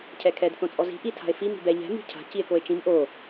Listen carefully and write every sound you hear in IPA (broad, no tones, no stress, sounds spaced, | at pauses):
cʰ ɛ kʰ ɛ d θ õ t͡sʼ ɔ z i̤ ʔ i tʰ a̤ e̯ f i m i̤ b ɛ ʎ ɛ̤ m i̤ cʰ a̤ c i e̯ k o e̯ t͡ʃ ĩ m ʔ o